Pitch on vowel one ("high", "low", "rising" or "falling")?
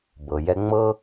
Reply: low